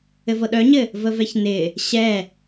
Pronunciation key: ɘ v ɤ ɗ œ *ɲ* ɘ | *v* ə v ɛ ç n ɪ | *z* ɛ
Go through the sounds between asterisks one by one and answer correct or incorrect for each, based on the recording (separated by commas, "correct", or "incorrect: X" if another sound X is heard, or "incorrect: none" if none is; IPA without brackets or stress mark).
correct, correct, incorrect: ɕ